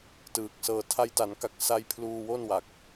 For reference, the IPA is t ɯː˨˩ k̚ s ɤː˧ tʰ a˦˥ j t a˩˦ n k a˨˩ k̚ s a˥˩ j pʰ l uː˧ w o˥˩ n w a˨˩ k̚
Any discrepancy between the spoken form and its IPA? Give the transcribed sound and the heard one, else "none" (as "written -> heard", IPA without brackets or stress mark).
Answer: none